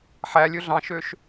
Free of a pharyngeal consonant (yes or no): no